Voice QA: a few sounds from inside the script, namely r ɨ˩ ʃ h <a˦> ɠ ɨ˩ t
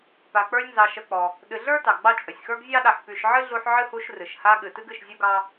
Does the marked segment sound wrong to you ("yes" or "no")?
no